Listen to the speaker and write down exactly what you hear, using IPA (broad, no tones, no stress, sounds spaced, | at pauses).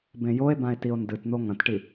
b ẽ j o e̯ b ã e̯ t i o̯ n d ɨ t n̪ o ŋ ɐ̃ t ʈ i